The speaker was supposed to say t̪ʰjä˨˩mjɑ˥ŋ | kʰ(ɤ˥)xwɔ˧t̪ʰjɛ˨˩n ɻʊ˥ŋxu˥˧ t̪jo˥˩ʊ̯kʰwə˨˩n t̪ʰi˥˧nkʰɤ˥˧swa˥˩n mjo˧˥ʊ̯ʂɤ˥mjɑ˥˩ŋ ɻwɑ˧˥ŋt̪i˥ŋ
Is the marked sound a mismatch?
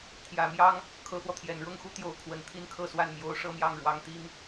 yes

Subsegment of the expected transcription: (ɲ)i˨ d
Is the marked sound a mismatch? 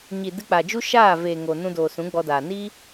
no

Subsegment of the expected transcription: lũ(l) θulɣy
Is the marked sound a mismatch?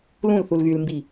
no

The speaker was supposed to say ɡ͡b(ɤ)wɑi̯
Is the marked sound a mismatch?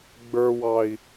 yes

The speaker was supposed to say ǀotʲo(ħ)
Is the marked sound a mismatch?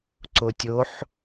no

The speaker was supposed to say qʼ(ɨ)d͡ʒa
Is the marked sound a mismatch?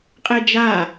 yes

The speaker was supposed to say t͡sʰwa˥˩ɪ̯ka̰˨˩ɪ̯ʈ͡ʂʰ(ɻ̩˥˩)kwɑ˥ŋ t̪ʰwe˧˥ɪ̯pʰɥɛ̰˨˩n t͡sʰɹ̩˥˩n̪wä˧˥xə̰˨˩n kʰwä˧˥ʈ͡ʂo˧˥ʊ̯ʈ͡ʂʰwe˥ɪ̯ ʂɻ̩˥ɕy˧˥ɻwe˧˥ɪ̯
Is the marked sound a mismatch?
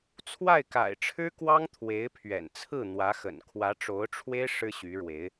yes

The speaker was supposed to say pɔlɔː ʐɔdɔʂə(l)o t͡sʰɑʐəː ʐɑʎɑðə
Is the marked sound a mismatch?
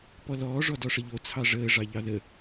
yes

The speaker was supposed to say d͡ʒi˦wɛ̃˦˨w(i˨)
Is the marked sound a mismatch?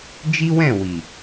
no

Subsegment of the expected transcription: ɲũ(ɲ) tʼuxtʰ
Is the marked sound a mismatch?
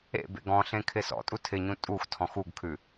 yes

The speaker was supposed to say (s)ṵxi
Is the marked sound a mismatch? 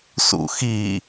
no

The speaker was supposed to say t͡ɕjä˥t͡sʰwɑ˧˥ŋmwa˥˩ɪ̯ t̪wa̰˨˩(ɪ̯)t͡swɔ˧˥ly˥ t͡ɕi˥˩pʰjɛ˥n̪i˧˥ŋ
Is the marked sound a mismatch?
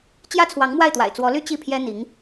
no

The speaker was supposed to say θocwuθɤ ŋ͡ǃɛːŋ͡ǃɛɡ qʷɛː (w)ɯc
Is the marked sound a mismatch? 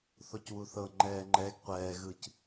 yes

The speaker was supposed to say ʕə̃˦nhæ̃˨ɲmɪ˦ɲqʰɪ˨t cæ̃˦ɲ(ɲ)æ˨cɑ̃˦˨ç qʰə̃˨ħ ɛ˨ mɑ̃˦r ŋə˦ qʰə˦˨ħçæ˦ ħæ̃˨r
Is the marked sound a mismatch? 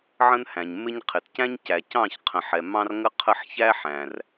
yes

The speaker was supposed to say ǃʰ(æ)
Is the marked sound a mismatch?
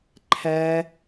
no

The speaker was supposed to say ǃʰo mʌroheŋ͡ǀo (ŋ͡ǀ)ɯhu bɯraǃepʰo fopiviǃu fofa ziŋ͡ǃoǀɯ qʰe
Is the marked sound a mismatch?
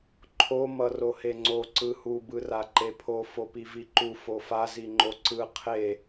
yes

